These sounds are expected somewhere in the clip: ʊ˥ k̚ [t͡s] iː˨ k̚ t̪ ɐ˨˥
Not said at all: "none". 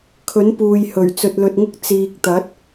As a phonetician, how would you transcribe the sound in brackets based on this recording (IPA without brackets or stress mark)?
t͡s